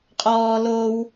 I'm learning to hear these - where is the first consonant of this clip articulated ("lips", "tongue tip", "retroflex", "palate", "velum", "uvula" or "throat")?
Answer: uvula